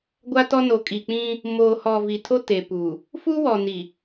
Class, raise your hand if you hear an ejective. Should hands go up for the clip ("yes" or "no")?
yes